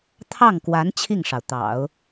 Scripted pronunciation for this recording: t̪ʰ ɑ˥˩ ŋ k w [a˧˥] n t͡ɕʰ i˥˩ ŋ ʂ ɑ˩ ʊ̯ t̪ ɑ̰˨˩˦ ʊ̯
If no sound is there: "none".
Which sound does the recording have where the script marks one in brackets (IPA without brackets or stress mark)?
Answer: a˧˥